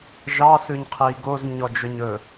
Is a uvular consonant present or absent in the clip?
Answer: present